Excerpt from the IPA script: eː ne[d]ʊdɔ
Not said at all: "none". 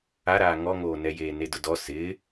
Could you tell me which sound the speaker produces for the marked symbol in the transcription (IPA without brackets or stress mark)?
d